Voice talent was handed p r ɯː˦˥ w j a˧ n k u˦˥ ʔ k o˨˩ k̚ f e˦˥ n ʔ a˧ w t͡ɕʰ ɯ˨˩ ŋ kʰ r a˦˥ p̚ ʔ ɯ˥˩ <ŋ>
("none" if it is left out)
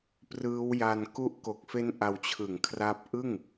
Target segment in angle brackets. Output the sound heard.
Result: ŋ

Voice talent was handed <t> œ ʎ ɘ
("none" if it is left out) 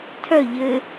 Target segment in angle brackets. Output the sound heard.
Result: tʰ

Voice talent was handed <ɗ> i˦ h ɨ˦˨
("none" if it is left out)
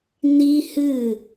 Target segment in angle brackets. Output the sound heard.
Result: n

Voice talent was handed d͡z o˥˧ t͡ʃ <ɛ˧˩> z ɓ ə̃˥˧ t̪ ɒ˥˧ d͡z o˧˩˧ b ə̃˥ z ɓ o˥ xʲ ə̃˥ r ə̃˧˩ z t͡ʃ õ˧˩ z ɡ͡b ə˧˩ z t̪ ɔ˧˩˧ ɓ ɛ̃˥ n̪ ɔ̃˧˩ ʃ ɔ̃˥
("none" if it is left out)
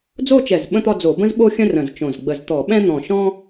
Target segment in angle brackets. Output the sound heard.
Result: ɛ˧˩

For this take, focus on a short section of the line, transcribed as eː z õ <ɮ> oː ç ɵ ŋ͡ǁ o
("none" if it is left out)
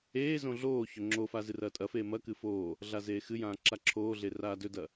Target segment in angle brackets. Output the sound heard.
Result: ɮ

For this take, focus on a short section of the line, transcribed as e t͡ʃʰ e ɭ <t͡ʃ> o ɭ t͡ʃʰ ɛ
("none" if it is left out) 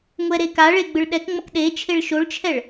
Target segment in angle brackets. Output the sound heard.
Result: ʃ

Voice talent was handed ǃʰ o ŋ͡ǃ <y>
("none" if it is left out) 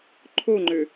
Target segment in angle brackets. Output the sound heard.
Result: ø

